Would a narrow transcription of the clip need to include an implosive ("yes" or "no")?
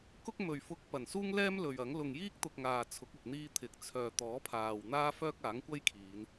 no